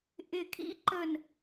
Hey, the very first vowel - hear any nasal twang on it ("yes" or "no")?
no